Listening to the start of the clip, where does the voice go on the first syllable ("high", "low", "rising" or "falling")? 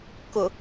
low